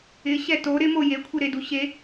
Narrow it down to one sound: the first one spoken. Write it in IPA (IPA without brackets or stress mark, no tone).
ɪ